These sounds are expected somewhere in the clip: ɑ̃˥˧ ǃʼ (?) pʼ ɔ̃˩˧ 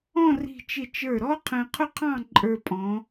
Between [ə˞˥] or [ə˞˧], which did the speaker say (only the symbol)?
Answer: ə˞˧